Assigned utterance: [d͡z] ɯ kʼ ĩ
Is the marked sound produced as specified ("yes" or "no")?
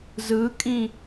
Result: no